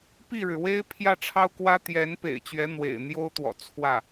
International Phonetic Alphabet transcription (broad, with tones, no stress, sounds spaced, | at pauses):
p i˥˩ ɻ ɻ̩˩ w e˥ ɪ̯ pʰ j ä˥˩ ʈ͡ʂʰ ɑ˥ ʊ̯ k w ä˥ t̪ j ɛ˧˥ n p ḛ˨˩ ɪ̯ t͡ɕ ɥ ɛ˧˥ n̪ w ḛ˨˩ ɪ̯ n̪ j o˥ ʊ̯ t̪ w ɔ̰˨˩ t͡sʰ w ä˥˩